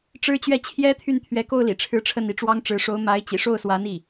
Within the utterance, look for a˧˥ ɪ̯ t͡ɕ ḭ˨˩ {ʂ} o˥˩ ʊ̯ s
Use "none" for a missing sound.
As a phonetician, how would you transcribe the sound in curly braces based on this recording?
ʂ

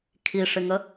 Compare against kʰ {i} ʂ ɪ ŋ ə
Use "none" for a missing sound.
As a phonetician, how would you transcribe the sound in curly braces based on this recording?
i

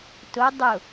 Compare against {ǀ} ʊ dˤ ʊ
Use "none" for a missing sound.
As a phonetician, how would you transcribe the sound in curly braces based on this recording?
t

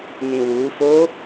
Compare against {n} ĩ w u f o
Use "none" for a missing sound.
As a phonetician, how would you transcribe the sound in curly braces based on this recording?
n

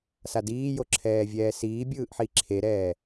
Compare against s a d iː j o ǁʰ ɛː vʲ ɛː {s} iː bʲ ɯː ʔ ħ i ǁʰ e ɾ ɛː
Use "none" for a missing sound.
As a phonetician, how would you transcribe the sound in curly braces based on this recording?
s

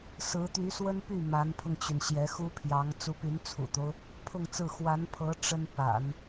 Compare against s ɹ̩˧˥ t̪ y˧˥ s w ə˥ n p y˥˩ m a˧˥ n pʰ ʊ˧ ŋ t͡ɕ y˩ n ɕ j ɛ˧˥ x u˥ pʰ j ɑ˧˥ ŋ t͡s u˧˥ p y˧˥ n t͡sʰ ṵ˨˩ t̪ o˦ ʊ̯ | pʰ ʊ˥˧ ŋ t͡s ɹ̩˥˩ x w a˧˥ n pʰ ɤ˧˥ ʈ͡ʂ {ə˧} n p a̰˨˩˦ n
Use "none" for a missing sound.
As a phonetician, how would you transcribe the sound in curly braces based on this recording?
ə˥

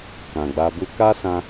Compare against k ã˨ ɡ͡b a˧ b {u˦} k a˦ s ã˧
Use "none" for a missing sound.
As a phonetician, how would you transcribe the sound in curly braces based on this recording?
u˦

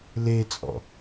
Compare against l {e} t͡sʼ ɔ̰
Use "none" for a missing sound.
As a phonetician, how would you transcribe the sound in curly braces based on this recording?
e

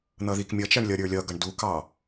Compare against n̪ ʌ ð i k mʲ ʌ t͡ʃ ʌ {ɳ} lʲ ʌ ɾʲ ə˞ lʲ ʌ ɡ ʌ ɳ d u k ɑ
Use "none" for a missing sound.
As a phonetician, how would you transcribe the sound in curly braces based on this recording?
ɳ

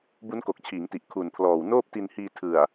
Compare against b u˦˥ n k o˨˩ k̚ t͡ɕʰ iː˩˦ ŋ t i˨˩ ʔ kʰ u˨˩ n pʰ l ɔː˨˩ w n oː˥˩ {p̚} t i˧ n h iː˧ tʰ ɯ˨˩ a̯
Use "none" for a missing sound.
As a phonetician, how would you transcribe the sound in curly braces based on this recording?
p̚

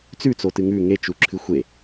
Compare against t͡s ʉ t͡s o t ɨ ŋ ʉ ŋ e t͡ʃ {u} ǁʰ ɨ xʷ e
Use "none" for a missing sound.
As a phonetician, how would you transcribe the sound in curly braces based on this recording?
u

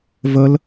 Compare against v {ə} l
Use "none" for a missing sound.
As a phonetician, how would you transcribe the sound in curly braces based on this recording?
ə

